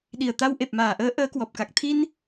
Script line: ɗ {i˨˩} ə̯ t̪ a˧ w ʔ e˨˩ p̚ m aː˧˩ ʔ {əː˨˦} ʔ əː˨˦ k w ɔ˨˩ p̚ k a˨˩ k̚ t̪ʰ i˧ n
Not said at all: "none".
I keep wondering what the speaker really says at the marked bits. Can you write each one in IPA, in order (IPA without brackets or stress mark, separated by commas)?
i˨˩, əː˨˦